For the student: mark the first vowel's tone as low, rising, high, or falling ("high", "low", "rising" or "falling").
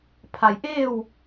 low